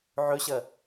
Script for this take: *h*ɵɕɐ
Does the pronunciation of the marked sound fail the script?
yes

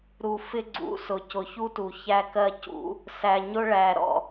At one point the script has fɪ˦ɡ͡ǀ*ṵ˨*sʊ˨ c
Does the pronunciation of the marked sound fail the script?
yes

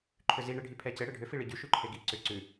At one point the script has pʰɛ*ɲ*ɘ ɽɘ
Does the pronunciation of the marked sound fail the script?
yes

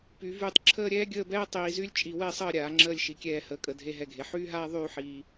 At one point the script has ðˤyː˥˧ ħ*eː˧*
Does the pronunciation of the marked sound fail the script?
yes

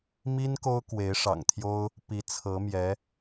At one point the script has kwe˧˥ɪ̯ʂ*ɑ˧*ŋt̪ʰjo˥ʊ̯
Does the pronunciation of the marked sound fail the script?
yes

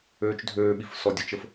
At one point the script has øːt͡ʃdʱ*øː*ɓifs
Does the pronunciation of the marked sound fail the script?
no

